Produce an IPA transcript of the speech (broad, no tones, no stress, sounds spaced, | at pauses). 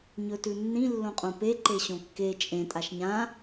ɲ ɵ t ʉ nː ĩ lː õ qʼ õ p e ǃ e ɕ õ kː e t͡ʃʼ ẽ tʼ a ʃ ɲ ã